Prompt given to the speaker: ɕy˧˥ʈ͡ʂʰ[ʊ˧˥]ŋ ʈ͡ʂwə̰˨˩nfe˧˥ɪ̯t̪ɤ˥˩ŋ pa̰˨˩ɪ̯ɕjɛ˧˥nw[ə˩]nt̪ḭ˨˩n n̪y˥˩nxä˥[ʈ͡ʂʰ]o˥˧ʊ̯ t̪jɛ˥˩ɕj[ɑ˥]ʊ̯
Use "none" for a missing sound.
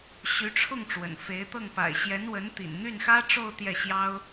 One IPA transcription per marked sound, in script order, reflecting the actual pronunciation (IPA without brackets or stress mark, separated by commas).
ʊ˥˩, ə˧˥, ʈ͡ʂ, ɑ˥